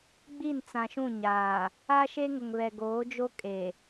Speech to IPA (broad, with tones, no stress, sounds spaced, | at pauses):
ɡ͡b i˦˨ n t͡s ã˨ ʃ ũ˦˨ ɲ aː˨ | a˦ ʃ e˦ ŋ ʊ˨ ŋ β ɛ˨ ɡ oː˨˦ d͡ʒ o˦ kʼ e˨